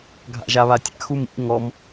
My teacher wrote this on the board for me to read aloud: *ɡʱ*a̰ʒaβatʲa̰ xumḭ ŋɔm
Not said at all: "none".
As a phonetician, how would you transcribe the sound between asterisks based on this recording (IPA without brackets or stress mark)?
ɡʱ